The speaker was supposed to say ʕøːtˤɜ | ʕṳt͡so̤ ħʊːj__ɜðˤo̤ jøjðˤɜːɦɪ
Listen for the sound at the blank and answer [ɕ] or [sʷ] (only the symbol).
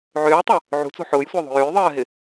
sʷ